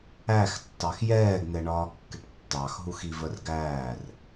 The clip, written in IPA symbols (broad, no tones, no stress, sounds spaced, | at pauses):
æ x tː ɑ x j ɛː ɡ n̪ ɛ ɳ ɒː kː ɪ ʈ tː ɑ x ɦ u x i v ə r ɡ æː r